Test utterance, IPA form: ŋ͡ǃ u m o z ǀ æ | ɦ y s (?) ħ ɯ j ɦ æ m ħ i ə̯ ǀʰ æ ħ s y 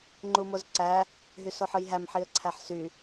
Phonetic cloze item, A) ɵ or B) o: B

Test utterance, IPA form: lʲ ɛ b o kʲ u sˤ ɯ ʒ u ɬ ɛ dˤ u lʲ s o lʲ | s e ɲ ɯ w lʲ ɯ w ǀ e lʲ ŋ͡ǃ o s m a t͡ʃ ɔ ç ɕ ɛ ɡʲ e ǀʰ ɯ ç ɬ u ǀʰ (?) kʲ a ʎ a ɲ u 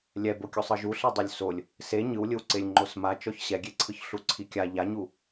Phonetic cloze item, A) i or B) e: A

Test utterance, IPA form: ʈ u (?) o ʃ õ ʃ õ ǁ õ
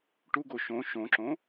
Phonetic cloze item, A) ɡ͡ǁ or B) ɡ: B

